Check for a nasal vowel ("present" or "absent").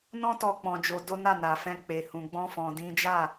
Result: present